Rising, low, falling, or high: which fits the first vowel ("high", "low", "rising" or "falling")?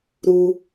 low